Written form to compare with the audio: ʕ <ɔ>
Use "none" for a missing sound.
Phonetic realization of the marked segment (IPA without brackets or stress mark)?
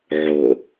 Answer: o